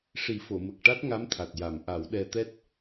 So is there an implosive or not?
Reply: yes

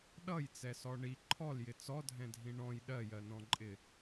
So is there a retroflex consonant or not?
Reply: yes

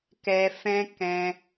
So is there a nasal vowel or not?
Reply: yes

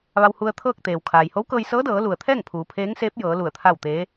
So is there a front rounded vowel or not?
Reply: no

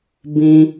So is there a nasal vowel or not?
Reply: yes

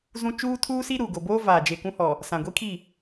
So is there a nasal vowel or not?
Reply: yes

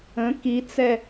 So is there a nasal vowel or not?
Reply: yes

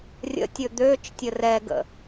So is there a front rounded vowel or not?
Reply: yes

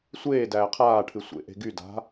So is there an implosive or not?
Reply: no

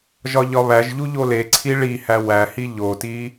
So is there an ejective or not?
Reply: no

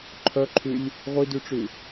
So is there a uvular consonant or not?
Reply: yes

